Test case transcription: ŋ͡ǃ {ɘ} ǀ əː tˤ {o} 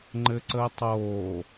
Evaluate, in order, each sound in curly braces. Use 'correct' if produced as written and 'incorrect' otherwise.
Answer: correct, incorrect

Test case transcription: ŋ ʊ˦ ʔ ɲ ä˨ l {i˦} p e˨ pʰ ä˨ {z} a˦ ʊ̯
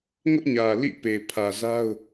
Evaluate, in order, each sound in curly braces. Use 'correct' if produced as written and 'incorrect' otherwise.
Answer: incorrect, correct

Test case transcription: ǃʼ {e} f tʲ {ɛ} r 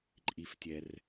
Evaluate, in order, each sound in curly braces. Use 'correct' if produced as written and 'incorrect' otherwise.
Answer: incorrect, correct

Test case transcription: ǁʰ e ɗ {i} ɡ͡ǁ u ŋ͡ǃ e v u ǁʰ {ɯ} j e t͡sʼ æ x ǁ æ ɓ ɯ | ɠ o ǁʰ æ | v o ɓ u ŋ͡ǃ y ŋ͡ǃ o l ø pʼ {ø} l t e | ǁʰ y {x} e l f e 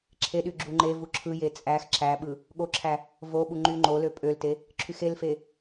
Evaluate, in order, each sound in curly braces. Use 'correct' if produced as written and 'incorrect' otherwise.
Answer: incorrect, correct, correct, correct

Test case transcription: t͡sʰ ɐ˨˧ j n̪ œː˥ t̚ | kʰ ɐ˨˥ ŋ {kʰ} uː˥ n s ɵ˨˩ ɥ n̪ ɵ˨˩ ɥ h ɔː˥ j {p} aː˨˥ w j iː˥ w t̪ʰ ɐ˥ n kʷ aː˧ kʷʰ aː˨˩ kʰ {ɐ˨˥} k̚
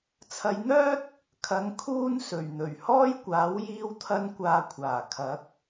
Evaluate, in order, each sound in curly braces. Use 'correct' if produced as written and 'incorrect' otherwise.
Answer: correct, incorrect, correct

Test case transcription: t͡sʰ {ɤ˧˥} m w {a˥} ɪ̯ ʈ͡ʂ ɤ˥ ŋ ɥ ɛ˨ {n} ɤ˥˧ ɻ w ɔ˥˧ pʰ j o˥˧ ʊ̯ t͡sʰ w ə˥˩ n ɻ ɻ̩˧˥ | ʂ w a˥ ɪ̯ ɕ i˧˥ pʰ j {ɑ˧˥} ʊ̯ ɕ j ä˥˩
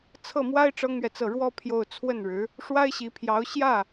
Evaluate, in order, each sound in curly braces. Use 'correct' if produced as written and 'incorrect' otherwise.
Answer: incorrect, correct, incorrect, correct

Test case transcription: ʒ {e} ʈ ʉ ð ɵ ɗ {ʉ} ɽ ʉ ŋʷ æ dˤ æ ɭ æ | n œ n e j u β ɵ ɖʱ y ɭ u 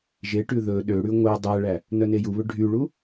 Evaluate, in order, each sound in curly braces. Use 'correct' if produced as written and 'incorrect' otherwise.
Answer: correct, incorrect

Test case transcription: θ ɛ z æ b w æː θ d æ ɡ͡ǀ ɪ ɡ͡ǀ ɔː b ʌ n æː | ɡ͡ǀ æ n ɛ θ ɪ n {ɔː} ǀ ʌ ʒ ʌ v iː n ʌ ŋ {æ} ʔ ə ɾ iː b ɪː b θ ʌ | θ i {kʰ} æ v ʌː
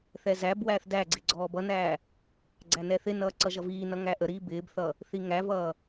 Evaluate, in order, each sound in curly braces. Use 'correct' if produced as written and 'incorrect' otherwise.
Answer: incorrect, correct, incorrect

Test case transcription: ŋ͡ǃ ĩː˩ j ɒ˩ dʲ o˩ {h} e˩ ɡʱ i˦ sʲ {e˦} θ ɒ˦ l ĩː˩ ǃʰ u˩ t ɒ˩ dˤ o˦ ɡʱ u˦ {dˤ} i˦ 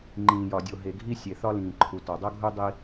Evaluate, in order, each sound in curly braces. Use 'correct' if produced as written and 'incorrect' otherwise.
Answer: incorrect, incorrect, correct

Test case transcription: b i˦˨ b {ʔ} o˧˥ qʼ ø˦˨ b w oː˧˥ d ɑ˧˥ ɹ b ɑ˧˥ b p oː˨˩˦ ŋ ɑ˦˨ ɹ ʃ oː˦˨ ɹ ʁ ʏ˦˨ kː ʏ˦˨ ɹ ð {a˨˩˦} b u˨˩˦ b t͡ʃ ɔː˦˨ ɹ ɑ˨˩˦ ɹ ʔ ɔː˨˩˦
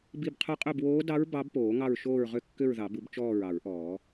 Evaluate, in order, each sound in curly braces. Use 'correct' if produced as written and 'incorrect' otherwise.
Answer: incorrect, incorrect

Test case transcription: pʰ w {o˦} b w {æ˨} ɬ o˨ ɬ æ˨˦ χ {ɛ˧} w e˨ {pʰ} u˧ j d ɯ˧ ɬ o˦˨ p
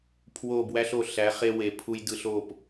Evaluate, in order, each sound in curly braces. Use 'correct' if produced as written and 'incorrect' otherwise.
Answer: incorrect, incorrect, incorrect, correct

